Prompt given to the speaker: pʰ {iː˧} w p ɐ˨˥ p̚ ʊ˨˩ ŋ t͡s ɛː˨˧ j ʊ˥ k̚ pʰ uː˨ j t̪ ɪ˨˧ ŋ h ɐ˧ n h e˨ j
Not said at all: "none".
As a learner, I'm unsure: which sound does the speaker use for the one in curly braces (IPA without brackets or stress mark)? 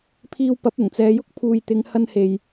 iː˧